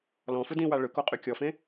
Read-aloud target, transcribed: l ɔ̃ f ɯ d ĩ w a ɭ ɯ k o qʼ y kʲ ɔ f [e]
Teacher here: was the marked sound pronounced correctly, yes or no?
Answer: no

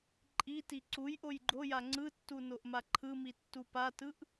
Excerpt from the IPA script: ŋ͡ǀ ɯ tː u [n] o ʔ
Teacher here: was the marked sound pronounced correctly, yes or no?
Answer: yes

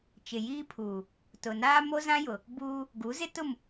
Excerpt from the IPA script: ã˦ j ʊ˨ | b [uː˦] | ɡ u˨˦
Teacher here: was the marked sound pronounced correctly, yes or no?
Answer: yes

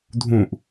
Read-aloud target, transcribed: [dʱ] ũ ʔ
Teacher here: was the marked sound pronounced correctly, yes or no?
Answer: yes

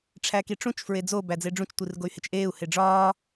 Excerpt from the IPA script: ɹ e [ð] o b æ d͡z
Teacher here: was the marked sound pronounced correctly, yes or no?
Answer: no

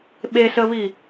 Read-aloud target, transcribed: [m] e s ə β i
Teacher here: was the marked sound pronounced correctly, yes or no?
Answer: no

